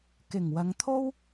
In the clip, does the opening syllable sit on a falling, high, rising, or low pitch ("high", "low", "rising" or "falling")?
low